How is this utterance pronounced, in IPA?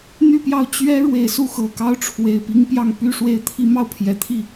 n̪ y˥˧ p j ɑ˥˩ ʊ̯ t͡ɕ ɥ ɛ˥ ɻ w e˨˩ ɪ̯ s u˥˩ x ɤ˨˩ k ɑ˥ ʊ̯ ʈ͡ʂʰ w e˨˩ ɪ̯ p i˥ ŋ p j ɑ˥˧ ŋ p y˥˧ ʂ w e˥˩ ɪ̯ t̪ʰ i˥ m ɑ˥˩ ʊ̯ pʰ j ɛ˨˩ t̪ʰ i˥˩

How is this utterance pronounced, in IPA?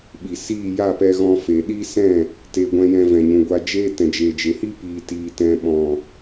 ɓ i˨ s iː˦˨ j a˦˨ p ɛ˧ ɣ ɔ̃˧ f e˨ ɗ iː˦ s ɛ̃˦˨ | t eː˧ ɡʷ ɛ̃˧ j ɛ̃˧ v ɛ̃˨ ɲ ũ˨ ɡʷ a˧ d͡ʒ eː˦ t ɛ̃˨ d͡ʒ eː˨ d͡ʒ e˨ h i˦ p iː˨ t iː˨ t ɛ̃˨ ɓ ɔ̃˨

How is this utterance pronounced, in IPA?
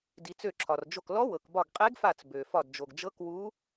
d i˩ t͡s ø˧˩ ǁʰ ɒ˩ r d͡ʒ o˧˩ k l ɔ˧˥ w ɤ˩ k b ɒ˧˩ ɡ qʼ e˧˥ ɡ f a˧˩ t͡s b ø˩ f ɒ˧˩ d d͡ʒ o˩ ɡ d͡ʒ ɤ˧˥ k w u˧˥

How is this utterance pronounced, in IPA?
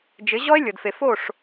d͡ʒ ɪ˨˦ ʑ ɔ˦ e̯ lʲ ɤ˨ d f e˨ f o˦˨ ʂ

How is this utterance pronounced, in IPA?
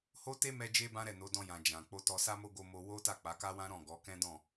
h o˦ t e˦ m ɛ˧ d͡ʒ e˦ b ã˦ ɾ ɛ˦˨ n o˨˦ d ɔ̃˧ j ã˨ d͡ʒ ã˨ k͡p o˧ t ɔ˧ s a˦ m o˦ ɡ o˧ m o˧ w o˦ t a˦˨ k͡p a˨˦ k a˦ w ã˦ ɾ ɔ̃˦˨ ɡ ɔ˨˦ k ɛ̃˦ d ɔ̃˦˨

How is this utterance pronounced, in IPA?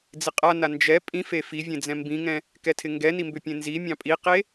d͡z ɪ qʼ a n a n d͡ʒ ɛ pʼ ĩ f e f i vʲ ẽ d͡z ɛ̃ m b ĩ ŋ ɛ̃ | k ɛ tʰ ɪ ŋ ɡ ɛ n i m b ʏ pʲ ẽ n z i mʲ ɑ̃ pʼ i q e

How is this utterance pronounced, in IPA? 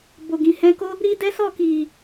b o˨ ɡ ĩ˨ h ɛ̃˧ k o˦ | ɾ i˦ d ɛ˦ s ɔ˦˨ k i˨

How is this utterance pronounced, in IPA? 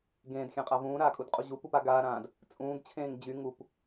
ɡ ẽː d xʲ ã qʼ a v ũː ɾ aː kʼ u d qʼ u ʑ u p u p a ɡ aː ɾ ãː d | t͡sʼ ũː ɡ t͡ɕʰ ẽː ŋ d͡ʑ y ŋ u p

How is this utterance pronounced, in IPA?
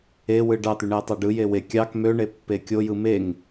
e w ɯ ɖ ɑ t̪ y ɳ e tˤ ɑ ɖ ɯ j e w e kʲ ɑ k m ø ɳ e pː e kʲ o j ɯ m e ŋ

